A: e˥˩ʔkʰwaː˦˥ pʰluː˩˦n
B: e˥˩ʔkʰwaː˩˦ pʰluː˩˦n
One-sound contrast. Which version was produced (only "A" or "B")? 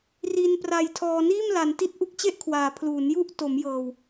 B